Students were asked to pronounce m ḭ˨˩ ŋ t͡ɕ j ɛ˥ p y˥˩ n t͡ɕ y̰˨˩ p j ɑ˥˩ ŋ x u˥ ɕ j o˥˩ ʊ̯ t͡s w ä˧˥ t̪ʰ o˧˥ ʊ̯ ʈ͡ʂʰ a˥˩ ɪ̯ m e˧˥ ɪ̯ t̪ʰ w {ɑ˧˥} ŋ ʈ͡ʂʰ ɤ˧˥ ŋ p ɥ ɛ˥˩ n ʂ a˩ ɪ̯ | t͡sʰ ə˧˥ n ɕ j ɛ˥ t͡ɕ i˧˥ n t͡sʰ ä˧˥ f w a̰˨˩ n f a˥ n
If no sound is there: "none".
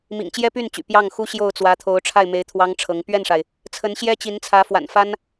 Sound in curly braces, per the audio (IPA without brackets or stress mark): ɑ˥